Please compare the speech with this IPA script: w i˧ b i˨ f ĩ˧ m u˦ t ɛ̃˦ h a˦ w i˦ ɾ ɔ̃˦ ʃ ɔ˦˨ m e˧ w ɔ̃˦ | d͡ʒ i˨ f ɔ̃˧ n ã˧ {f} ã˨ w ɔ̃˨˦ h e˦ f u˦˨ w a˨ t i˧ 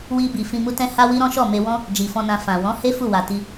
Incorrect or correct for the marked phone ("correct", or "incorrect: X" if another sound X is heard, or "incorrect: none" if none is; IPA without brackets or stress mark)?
correct